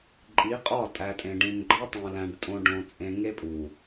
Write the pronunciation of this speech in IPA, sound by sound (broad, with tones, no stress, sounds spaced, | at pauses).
ǃʼ i˨˦ qʼ ɒ˦˨ tʼ æ˨ tʼ ẽ˨ ɖ ĩ˨ n ɡ͡ǃ ɒ˦ tˤ ũ˨ l æ̃˨ ɖ tʼ õ˨ ɖ õ˨ t͡sʼ ẽ˨ ŋ e˦ pʼ u˨